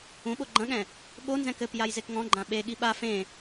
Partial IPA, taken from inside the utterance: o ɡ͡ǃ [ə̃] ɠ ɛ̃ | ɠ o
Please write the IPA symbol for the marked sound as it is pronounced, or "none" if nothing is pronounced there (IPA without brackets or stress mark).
ɐ̃